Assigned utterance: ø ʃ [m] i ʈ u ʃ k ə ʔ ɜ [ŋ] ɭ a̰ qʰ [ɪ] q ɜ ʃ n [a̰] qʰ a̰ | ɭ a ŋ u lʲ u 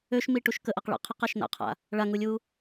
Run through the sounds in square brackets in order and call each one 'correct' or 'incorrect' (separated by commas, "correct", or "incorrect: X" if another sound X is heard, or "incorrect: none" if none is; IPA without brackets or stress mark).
correct, incorrect: q, correct, correct